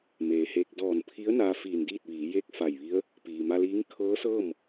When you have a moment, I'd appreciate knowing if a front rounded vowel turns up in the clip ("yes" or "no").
no